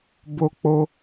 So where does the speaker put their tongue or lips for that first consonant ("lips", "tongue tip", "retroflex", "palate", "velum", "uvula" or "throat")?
lips